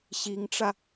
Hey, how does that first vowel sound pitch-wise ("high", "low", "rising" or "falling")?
rising